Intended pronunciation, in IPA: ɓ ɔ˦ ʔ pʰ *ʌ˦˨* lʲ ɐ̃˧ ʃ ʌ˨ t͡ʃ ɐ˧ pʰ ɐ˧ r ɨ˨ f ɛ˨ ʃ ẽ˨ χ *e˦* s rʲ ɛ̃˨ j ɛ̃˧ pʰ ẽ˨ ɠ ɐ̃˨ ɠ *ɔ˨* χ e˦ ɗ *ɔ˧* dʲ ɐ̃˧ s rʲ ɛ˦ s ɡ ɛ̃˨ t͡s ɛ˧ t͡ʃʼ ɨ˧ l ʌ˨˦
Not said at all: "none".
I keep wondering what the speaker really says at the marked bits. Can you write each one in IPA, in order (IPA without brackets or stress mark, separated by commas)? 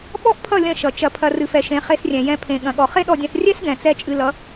ʌ˦˨, e˧, ɔ˨, ɔ˧